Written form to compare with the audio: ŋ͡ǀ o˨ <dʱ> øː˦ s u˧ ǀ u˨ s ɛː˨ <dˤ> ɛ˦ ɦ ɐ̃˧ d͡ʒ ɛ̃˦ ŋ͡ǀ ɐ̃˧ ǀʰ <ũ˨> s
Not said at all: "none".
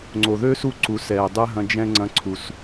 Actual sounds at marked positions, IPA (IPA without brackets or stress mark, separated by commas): ð, dˤ, u˨